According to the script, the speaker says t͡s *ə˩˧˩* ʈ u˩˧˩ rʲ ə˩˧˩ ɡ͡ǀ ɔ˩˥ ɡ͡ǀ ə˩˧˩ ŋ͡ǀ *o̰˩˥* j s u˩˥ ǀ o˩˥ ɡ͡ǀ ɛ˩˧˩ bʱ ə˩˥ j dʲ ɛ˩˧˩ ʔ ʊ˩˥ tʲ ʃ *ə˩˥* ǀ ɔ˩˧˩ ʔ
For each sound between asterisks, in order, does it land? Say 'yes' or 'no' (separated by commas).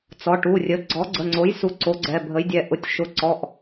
no, no, no